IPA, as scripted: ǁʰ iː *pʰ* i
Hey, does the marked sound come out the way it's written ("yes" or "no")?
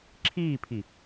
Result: yes